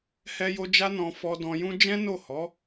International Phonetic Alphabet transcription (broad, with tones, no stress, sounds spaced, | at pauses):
h ɛ˧ j o˧ d͡ʒ a˦ n ɔ̃˧ f ɔ˦ d ɔ̃˧ j ũ˦ d͡ʒ ɛ̃˦ n o˦˨ h ɔ˨˦